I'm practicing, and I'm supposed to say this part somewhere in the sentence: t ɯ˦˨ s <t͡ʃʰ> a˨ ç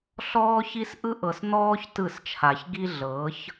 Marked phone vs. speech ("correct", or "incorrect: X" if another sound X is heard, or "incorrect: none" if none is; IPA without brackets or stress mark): correct